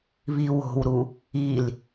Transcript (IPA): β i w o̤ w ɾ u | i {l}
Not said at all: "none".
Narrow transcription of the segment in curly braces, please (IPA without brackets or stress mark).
l